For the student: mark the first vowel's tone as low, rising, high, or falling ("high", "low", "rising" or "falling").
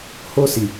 high